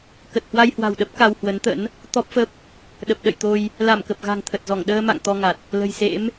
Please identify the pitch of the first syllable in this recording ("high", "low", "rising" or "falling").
low